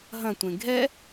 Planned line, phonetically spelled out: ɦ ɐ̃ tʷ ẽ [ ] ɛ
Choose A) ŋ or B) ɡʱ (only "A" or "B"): B